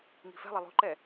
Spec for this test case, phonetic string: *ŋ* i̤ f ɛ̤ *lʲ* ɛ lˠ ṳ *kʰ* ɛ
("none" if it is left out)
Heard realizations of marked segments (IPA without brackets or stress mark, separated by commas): ŋ, lˠ, ǃ